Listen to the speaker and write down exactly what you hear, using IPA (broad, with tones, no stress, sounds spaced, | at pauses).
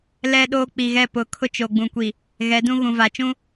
l ɛ˦ ɗ oː˦ k͡p i˨ ɣ ɛ˦˨ p ʊ˨˦ kʰ ʊ˦ t͡ʃ o˨ ɡ͡b ũ˨ kʷ i˨ | ɣ ɛ˨˦ d ũ˦ ɣ ũ˨ v a˨ t͡ʃ ũ˦